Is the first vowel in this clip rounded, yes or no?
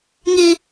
no